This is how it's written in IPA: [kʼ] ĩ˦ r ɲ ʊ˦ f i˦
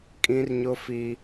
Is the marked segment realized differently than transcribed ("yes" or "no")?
no